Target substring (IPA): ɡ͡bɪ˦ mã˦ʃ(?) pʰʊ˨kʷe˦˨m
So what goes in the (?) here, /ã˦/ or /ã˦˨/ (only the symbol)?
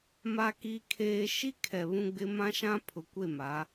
ã˦